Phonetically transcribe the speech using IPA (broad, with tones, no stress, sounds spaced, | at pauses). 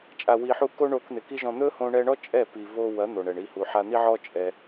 t͡ʃʼ a˨ w i˨ ħ u˧ k o˦ ɳ o˧ k n̪ ɪ˨ k i˦ ʒ ɔ̃˧ n̪ ɵ˦ h õ˧ ɳ ɛ˧ ɳ ɔ˦ t͡ʃʼ ɛ˦˨ p i˨ v o˧ w ɐ˨˦ n̪ o˨ ɳ ɛ˨ ɳ i˦˨ h u˨ ħ a˧ n̪ i˦ ʕ ɔ˦ t͡ʃʼ ɛ˧